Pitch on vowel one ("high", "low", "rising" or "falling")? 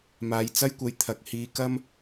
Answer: rising